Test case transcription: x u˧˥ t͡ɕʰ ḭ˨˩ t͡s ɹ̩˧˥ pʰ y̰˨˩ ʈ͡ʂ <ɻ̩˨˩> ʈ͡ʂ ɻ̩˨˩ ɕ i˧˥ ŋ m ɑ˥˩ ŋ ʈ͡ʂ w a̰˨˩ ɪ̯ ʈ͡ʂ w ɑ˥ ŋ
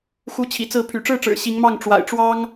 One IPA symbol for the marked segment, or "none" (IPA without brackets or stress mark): ɻ̩˥˩